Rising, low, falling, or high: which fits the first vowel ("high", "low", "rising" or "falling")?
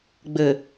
low